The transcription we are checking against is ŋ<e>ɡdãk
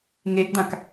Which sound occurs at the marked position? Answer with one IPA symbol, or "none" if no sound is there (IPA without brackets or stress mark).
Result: e